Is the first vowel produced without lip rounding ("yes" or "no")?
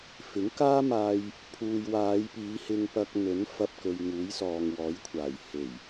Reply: yes